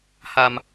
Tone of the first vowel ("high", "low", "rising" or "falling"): low